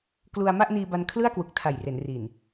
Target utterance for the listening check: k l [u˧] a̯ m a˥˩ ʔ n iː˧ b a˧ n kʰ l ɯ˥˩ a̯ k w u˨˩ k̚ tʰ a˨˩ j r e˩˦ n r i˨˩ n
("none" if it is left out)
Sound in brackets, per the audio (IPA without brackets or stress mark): u˧